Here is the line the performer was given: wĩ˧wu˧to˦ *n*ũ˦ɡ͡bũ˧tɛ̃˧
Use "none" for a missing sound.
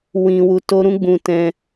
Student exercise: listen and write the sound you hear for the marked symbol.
ɾ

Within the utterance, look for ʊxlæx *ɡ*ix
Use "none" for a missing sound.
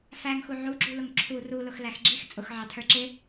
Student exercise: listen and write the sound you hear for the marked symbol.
ɡ͡ǁ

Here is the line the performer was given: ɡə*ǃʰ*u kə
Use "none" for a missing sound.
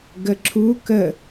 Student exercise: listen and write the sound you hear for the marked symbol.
ǁʰ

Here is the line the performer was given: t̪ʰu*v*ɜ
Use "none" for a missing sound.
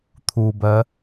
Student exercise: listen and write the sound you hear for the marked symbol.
b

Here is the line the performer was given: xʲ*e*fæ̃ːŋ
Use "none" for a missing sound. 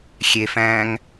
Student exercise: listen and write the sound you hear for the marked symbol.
e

